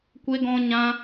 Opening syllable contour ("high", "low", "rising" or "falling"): high